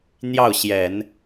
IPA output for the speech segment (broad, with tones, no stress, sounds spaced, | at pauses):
n̪ j ɑ˥˩ ʊ̯ ɕ j ɛ˨˩˦ n